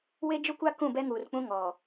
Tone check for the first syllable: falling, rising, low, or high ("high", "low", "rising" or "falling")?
high